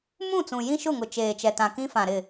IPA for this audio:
m ũ˦˨ t͡s ũ˨ j ĩ˦ ʃ ʊ˦˨ ŋ ʊ˨ t͡ʃ eː˨ t͡ʃ ɛ˨ t ã˨ k ĩ˦ f ã˨ ɾ ɪ˦˨

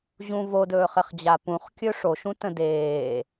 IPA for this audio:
ʑ ũ v o d ɵː χ ɘ χ d͡ʑ a p ũ χ kʲ ɵ ʂ o ʃ ũ t ə̃ d eː

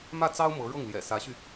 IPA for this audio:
m ä˥˩ t͡s ɑ˥ ʊ̯ m ɤ˧˥ ɻ ɤ˥˩ ŋ l j ɛ̰˨˩ s ä˧˥ ɕ y˧

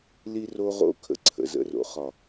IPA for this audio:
l i˧ r o˧ ʁ o̰˧ kʰ ə̰˧ ǀʰ ə̰˨ z ə̰˧ r o̰˨ χ ɒ˨

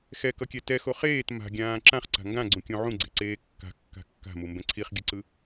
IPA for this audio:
x ɛ k ʌ kʲ ɛ t ɛ x o χ eː t m a̤ ɡʲ ãː ǁ ã χ ǀ a̤ ŋ ɡ ã ɡ͡ǀ ũ kʲ õ ʕ ũ ɡ͡ǀ e̤ ǀ eː kː a̤ kː a̤ kː a̤ m u m b ɛ̃ ǀʰ i χ ɡʲ ɯ ǀ ɯ

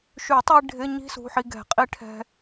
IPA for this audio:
ʃ y˨˩˦ tˤ i˧ ɖʱ ɪ˧˥˧ ɲ i̤˦˥ s ṳ˩˧˩ ħ i˧ ɡ ɛ̤˨˩˦ qʼ i˦˥ ʈʰ ɛ̤˧

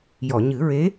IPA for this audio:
j ɔ˨˩˨ ɲ ɨ˨˩˦ ɹ e˧˥

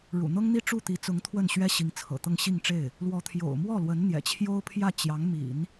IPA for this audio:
ɻ ṵ˨˩ n̪ ɤ˥ ŋ n̪ i˥˧ ʈ͡ʂ u˥˩ t̪ i˧˥ t͡s ʊ˧˥ ŋ t̪ʰ w ə˥˩ n ɕ ɥ ɛ˥ ɕ i˧˥ ŋ t͡sʰ ɤ̰˨˩ t̪ ɤ˥˧ ŋ ɕ i˥˧ ŋ ʈ͡ʂ e˥˩ ɪ̯ | l w ɔ˧˥ t̪ʰ j o̰˨˩ ʊ̯ m w ɔ˥˩ l w ə˧˥ n n̪ j ɛ̰˨˩ t͡ɕʰ j o˥ ʊ̯ pʰ j ä˥˩ t͡ɕ j ɑ˧˥ ŋ m ḭ˨˩˦ n

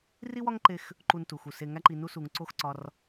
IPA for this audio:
r i˦ w ɒ˦ ŋ ǃ e˧ x | ǃ u˧ n t u˨ x u˨ s e˧ ŋ æ˦ ǃ i˧ n u˧ s u˨ ŋ ǀ o˦ x ǀ ɒ˧ r

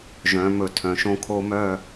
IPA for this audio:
ʒ œ̃ː˩˧ m ɵ˩˧ tʰ œ̃˩˧ ʃ õ˦ kʰ o˦ m œ˦˨

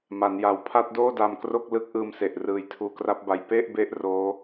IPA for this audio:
m a˩˦ n j a˨˩ w pʰ a˥˩ t̚ d oː˥˩ d a˧ m k r o˥˩ k̚ l ɯ˦˥ k̚ ʔ ɯː˧ m s e˨˩ ʔ r ɯː˨˩ j tʰ uː˨˩ k r a˦˥ p̚ b a˧ j p e˥˩ ʔ b e˦˥ ʔ r oː˦˥

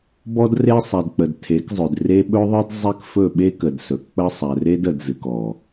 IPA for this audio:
b ɔ˦ d r e˦ sˤ ɛ˨ d k͡p ə˨ d tʰ e˨˦ k zˤ ɵ˨ d r e˦ ɓ ɵ˦ ðˤ ɨ˦ d zˤ e˦ k f ɵ˦˨ ɓ e˦ k ə˨ d s ɵ˨ k k͡p ə˦ sˤ ɛ˨ r e˦ d ə˨ d z ɨ˨ k ɔ˨

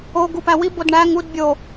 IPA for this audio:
o ɡ u p æ w i b o d ɳ æ ŋ u d bʲ o

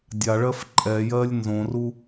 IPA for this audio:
dʲ a ɭ ɜ f ǃʼ ɛ j ɜ lʲ n z õ r u

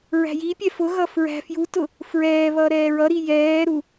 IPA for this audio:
ɹ æ̤ j i pʲ ɛ f ʊ ɣ ʌ f ɹ æ̤ f j u t ʊ | f ɹ ɛː β ʌ ɾ ɛː ɹ ʌ ɾ i j ɛː ɾ u

